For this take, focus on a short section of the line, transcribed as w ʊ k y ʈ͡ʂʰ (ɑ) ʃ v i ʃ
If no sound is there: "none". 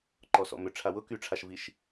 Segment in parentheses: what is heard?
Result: a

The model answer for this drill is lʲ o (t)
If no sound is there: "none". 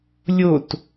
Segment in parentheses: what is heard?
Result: t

